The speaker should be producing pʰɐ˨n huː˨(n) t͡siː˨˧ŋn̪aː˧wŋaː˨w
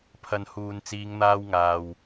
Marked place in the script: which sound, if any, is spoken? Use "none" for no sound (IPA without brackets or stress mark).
n